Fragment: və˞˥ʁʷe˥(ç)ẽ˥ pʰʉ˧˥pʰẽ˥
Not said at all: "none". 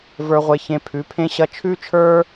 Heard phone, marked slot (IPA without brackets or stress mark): ç